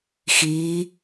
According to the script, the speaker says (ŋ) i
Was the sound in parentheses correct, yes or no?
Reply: no